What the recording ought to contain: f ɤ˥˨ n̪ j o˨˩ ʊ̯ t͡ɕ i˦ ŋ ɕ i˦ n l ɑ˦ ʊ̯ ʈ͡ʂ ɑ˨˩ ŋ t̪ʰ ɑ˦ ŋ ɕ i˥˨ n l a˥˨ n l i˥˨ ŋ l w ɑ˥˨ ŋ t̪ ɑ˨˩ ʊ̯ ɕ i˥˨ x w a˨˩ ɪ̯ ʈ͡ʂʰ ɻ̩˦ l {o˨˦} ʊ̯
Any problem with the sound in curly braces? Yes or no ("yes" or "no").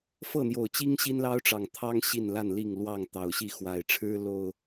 yes